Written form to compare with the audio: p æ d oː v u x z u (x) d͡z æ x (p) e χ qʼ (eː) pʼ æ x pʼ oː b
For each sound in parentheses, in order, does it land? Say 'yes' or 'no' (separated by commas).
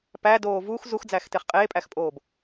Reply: yes, no, yes